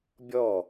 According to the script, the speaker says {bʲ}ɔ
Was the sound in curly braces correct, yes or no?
yes